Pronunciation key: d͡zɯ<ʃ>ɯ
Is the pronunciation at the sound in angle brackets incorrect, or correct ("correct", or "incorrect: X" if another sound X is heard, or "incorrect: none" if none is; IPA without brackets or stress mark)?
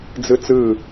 incorrect: t͡s